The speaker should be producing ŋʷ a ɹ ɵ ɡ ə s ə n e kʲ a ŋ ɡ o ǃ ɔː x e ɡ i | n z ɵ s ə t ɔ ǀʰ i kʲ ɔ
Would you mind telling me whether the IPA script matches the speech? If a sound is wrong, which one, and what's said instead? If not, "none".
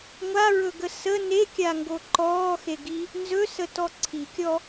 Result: none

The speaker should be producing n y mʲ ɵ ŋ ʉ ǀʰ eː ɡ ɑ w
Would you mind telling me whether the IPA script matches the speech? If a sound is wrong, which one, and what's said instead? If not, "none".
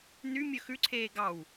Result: ŋ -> x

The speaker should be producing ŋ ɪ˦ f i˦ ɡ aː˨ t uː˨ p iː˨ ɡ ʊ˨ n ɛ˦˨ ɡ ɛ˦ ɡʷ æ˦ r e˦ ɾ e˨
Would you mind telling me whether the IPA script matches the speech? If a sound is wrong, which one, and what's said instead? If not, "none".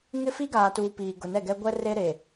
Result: æ˦ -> ɛ˦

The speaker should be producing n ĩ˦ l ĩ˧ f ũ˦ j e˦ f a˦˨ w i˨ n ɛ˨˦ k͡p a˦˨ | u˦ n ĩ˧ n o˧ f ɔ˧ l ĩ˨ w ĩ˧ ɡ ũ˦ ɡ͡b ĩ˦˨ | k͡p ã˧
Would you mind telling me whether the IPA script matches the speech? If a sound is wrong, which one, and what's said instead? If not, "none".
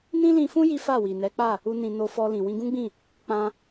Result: e˦ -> i˦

